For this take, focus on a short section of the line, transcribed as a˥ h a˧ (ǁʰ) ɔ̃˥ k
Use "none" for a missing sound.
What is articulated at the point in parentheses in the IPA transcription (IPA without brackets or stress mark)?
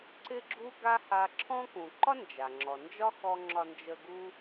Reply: ǁʰ